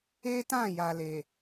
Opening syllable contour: high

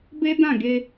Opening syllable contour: high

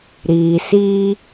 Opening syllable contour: low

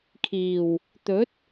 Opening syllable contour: low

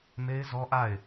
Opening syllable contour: high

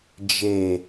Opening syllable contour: low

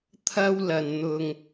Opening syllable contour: high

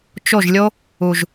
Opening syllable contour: falling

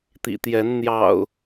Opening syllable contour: low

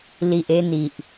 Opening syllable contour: low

